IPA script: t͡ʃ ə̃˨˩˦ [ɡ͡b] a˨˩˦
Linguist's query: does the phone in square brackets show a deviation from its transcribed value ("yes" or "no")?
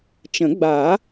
no